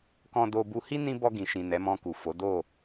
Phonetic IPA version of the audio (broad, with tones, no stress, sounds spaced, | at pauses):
k ɔ̃˧ d o˧ b u˧ h i˦ n ĩ˦ b ɔ˧ ɡ ĩ˨ ʃ ĩ˨ n ɛ˨˦ m ɔ̃˧ k u˨ f o˨˦ d o˦˨